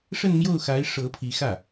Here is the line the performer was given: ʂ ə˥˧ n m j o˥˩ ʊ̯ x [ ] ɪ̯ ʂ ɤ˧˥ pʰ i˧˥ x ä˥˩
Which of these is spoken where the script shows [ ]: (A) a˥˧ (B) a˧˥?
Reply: B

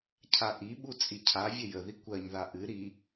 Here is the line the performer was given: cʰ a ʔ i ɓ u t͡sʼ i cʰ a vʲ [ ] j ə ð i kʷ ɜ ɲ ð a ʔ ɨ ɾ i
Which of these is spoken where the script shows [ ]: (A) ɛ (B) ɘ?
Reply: B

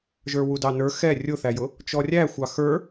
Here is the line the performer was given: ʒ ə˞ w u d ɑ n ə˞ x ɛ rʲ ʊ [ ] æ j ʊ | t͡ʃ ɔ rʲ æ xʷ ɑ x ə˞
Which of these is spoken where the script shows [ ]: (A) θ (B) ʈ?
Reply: A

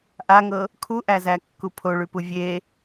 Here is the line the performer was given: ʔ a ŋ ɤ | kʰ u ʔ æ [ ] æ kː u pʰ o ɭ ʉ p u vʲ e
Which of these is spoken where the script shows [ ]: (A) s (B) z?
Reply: B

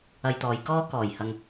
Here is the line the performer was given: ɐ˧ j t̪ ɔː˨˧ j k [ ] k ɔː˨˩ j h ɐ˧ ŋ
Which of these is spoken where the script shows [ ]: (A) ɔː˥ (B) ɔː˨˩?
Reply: A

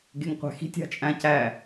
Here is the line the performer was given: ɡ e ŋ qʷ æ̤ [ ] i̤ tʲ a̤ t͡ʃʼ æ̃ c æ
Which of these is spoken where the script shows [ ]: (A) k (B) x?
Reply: B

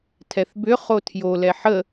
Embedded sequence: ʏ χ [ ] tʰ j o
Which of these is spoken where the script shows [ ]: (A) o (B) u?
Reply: A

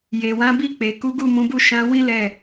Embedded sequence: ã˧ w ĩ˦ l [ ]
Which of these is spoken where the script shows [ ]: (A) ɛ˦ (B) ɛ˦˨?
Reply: B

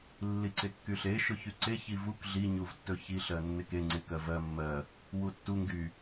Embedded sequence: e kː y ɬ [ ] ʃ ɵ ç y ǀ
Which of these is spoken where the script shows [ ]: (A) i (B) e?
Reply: B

